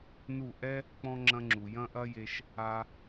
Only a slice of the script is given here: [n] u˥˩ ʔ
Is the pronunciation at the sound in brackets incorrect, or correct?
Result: correct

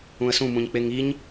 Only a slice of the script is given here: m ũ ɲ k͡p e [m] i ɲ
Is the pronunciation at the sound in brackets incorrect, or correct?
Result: incorrect: ŋ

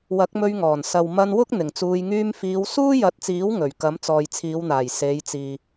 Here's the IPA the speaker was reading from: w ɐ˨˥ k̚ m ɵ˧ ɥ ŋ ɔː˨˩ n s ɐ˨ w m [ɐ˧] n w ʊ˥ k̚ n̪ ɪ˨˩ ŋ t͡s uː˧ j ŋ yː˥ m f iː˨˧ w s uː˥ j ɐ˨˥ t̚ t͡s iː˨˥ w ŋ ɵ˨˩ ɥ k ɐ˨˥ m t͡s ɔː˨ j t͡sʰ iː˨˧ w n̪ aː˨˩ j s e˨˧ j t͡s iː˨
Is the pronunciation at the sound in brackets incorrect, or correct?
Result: correct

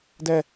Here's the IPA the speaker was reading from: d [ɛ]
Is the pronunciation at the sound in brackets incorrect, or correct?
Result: correct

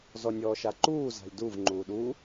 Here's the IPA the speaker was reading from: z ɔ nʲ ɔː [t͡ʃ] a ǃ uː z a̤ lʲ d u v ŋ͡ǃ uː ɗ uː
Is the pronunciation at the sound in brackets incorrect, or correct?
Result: incorrect: ʃ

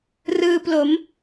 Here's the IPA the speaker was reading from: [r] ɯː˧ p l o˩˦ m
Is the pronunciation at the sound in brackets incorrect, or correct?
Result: correct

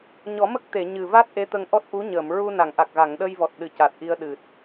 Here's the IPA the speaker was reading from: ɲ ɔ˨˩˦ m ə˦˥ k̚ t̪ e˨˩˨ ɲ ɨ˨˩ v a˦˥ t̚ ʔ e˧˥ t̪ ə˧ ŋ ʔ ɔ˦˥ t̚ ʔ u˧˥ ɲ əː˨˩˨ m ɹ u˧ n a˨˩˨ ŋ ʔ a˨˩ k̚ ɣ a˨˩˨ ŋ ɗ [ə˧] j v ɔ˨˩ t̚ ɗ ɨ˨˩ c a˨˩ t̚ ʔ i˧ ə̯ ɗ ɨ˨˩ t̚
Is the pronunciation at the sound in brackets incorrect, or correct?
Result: correct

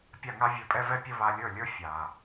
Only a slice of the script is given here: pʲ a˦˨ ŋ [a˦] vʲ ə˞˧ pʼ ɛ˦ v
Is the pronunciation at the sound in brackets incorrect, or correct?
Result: correct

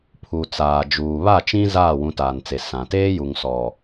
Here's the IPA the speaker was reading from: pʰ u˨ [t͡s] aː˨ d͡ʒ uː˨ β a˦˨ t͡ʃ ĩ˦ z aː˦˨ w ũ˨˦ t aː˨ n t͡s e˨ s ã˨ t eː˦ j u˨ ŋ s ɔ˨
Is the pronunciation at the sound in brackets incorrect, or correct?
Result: correct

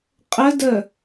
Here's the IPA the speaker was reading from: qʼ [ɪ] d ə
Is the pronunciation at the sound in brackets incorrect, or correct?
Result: incorrect: ə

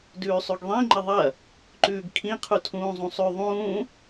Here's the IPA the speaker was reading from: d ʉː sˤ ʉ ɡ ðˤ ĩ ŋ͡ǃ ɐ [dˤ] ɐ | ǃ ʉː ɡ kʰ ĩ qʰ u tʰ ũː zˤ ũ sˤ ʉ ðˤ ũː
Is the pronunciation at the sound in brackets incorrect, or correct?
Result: incorrect: ðˤ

